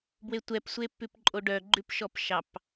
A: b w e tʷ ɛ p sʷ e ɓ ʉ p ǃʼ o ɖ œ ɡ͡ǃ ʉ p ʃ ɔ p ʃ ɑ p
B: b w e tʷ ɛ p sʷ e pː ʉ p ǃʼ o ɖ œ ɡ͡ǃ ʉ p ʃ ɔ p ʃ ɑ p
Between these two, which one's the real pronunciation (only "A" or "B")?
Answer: B